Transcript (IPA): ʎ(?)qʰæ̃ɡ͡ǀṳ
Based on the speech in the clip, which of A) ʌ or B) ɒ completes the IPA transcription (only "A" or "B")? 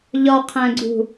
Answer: B